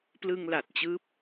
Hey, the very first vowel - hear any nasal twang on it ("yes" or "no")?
no